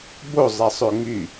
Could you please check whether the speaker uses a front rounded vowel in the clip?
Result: yes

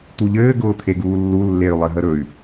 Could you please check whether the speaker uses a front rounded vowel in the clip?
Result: yes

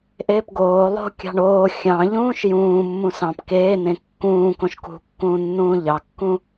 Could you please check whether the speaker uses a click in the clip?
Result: no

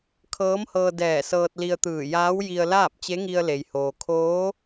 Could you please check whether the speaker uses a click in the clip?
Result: no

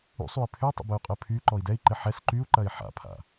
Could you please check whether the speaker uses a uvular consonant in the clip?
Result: yes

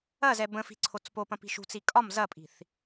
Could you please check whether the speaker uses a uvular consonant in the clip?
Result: no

